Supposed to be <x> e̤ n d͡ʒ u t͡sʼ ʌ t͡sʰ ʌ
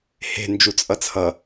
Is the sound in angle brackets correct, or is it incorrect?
incorrect